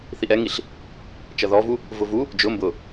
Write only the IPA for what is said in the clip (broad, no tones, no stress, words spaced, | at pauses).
θiʔɛŋiɬ | t͡ʃʌðɔvu | vʊvu | d͡ʒʊ mbʊ